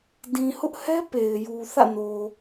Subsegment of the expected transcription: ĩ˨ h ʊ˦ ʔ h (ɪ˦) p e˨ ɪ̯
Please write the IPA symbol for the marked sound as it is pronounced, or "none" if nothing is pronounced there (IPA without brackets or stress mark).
ɛ˦